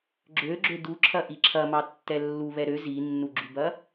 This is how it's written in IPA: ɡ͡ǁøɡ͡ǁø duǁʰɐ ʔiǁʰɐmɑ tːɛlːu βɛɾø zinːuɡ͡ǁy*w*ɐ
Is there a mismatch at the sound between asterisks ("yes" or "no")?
yes